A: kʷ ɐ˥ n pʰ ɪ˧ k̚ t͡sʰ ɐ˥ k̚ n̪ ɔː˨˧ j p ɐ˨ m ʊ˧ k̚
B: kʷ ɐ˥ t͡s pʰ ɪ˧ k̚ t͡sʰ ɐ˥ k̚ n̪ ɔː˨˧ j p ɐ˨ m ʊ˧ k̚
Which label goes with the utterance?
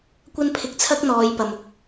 A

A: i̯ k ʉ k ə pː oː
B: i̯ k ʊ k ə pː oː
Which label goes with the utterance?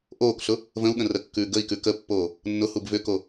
A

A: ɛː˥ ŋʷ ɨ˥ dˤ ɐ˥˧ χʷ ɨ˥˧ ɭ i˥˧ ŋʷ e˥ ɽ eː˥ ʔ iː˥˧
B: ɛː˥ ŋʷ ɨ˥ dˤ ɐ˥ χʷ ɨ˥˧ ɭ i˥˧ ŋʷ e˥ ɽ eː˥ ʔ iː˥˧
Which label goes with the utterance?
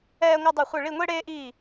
A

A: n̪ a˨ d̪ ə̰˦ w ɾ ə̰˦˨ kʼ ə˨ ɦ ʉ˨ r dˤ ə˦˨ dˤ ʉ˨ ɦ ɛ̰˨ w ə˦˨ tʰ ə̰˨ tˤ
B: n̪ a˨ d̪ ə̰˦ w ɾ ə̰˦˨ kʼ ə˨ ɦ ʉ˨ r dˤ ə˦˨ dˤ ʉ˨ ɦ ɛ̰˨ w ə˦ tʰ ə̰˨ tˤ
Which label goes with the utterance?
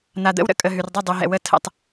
A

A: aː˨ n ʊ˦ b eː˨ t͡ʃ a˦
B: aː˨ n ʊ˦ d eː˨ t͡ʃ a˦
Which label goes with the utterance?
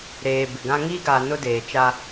B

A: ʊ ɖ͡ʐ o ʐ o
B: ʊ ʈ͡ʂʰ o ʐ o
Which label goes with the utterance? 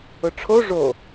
B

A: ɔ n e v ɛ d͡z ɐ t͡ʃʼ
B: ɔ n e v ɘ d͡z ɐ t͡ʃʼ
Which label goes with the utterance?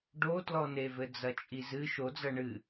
B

